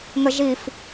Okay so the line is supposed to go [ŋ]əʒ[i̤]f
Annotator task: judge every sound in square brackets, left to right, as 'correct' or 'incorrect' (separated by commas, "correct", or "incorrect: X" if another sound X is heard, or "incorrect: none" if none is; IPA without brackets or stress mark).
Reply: correct, incorrect: i